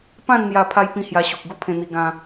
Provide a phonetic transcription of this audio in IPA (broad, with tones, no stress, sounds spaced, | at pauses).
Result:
p ã˥˧ n n̪ j a˧ pʰ a˦ j p ĩ˥˧ h j a˧ ɕ u˨ k̚ ɡ u˦ pʰ ẽ˧ n̪ i˧ ɡ ã˧